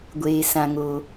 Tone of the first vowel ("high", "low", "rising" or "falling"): low